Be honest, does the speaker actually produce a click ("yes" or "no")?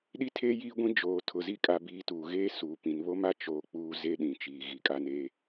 no